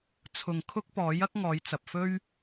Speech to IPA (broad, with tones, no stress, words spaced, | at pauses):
t͡sʰʊ˨ŋkʰʊ˥k̚pɔː˨˥j ɐ˥k̚ŋɔː˨˧jt͡sɐ˨p̚fɵ˥ɥ